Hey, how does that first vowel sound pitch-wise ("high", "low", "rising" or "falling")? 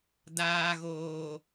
low